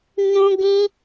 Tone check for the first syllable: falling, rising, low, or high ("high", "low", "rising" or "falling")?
high